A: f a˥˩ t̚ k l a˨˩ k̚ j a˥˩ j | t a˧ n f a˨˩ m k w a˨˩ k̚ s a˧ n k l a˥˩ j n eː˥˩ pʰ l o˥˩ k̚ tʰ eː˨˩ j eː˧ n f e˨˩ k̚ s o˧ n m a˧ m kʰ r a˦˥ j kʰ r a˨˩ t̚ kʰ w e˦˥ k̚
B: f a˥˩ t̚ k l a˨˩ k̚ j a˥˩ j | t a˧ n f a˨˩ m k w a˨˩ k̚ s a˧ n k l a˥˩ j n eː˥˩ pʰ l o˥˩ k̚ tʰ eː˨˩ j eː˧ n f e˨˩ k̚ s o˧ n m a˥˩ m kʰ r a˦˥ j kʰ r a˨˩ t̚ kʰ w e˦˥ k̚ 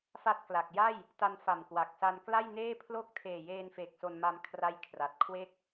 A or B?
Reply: A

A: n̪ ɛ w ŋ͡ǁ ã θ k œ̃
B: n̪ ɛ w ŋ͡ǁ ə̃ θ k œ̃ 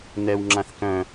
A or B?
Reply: A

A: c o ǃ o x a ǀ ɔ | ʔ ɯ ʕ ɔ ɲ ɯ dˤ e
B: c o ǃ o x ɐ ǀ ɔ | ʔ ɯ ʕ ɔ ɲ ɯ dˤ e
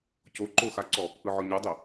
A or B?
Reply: A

